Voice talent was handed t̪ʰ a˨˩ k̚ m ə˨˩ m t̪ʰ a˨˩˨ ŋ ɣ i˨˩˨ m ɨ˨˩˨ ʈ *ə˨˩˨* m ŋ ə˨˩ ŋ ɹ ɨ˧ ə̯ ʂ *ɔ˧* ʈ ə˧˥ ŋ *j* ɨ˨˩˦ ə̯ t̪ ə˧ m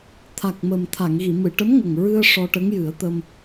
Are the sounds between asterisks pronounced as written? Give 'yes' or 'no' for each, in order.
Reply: no, yes, yes

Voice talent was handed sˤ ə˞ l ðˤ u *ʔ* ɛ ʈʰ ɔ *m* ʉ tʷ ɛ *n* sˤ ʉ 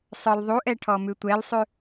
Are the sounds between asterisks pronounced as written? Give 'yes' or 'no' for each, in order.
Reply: yes, yes, no

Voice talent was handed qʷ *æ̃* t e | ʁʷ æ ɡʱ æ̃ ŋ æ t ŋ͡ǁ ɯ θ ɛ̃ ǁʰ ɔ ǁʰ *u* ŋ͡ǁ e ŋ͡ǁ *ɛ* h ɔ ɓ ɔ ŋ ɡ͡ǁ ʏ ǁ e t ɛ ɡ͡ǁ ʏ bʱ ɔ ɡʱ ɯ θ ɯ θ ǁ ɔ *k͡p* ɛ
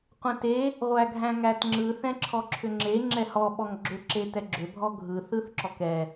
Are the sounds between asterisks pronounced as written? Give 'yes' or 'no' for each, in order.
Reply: no, no, yes, no

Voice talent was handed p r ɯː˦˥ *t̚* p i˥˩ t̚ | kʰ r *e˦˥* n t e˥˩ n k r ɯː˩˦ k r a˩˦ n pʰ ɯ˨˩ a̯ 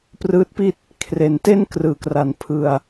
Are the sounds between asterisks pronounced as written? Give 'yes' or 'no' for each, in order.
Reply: yes, no

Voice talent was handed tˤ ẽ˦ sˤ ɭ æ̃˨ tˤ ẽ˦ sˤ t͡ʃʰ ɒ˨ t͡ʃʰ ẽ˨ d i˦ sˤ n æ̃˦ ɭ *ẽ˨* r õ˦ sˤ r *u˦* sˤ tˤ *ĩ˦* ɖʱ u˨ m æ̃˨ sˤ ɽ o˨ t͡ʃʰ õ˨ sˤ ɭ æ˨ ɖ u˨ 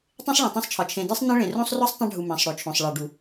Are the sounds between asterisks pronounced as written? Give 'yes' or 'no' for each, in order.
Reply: yes, no, yes

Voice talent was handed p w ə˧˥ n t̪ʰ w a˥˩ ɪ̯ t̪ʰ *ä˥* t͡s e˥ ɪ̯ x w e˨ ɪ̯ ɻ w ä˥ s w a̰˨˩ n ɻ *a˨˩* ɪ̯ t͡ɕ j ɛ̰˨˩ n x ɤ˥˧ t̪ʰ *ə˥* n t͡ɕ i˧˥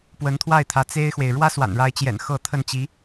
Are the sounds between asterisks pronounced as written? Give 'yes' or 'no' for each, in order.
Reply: no, no, no

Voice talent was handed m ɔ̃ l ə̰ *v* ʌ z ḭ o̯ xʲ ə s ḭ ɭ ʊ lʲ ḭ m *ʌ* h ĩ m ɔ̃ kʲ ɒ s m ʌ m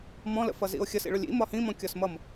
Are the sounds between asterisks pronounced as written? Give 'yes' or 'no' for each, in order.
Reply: no, no

